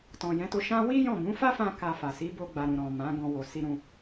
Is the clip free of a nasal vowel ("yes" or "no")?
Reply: no